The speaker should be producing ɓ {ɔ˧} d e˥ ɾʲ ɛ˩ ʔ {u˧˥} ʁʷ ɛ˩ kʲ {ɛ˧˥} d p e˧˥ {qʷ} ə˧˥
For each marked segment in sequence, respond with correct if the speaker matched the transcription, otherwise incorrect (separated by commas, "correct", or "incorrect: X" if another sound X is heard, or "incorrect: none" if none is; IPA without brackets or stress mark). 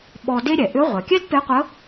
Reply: correct, incorrect: ʏ˧˥, incorrect: ɛ˥, correct